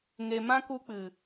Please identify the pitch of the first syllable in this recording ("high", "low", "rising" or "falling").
low